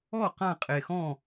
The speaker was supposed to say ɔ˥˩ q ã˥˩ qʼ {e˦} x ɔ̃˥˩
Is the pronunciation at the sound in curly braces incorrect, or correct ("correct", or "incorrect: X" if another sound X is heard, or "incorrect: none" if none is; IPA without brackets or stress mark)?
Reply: incorrect: e˨˩